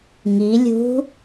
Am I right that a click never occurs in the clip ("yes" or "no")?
yes